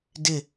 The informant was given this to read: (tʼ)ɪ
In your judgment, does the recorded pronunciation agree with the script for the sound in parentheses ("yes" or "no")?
no